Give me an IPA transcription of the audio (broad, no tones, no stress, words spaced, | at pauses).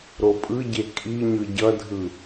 ɾopʼɯɟe kʼiɲɯ ɟʌdʱɯ